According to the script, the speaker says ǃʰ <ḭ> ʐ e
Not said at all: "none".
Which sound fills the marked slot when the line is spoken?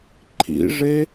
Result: ḭ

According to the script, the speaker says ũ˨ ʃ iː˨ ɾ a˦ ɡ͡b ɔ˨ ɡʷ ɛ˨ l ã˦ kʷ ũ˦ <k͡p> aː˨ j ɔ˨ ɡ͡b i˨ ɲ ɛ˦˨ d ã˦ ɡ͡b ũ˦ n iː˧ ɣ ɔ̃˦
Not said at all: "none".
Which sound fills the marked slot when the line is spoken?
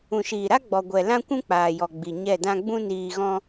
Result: k͡p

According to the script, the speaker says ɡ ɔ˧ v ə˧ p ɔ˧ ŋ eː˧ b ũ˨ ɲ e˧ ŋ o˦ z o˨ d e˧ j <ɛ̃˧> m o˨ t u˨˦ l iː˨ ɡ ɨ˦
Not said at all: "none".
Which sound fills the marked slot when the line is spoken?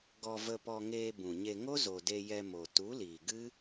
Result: ɛ˧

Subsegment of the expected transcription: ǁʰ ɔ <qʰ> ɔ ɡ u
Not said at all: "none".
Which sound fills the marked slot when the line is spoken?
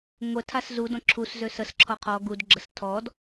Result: qʰ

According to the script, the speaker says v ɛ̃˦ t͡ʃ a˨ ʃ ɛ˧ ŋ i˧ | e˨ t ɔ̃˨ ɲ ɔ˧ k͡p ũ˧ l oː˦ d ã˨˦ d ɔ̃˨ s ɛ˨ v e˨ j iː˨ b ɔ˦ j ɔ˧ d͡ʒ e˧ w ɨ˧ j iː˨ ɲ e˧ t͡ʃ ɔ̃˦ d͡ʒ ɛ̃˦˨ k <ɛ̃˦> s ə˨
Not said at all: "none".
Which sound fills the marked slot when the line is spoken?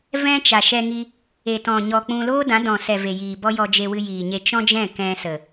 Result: ɛ̃˦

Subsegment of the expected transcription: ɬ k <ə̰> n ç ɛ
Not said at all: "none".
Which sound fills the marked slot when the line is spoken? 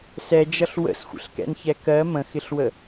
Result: ɛ̰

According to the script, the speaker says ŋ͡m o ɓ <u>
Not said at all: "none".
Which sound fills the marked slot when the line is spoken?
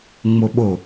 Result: o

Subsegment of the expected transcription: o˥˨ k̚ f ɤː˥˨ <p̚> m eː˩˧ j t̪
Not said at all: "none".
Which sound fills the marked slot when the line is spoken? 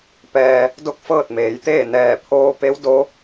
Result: t̚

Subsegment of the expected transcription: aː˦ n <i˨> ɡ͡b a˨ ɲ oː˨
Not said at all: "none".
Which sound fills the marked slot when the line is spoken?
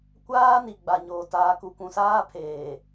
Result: i˨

